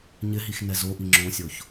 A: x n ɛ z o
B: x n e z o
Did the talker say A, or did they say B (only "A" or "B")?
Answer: A